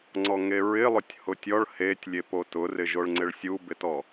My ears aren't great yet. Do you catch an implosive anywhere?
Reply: no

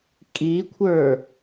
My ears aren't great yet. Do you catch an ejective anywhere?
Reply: yes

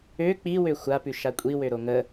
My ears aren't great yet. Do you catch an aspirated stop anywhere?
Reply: no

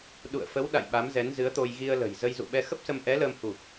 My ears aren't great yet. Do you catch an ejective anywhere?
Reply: no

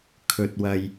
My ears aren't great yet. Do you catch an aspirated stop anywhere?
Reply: yes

